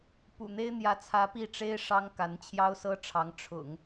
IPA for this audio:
pṵ˨˩n̪e˥ɪ̯ n̪jä˧˥t͡sʰä˧˥ pi˥˩ʈ͡ʂe˥ɪ̯ʂɑ˥ŋ ka˧˥nt͡ɕʰjɑ˥ʊ̯sɤ˥ʈ͡ʂʰɑ˧˥ŋ ʈ͡ʂʰʊ̰˨˩˦ŋ

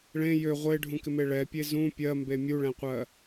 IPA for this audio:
ɭẽ jø ʁʷeɖʱũkɪme ɭɛpʲe zũ pʲɜmbe mʲuɭɛ̃qʷɜ

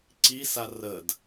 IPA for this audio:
ǀisa rəd

